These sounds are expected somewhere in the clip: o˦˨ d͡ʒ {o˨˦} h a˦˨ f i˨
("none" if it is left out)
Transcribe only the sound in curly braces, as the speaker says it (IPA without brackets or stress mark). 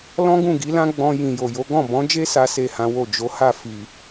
o˨˦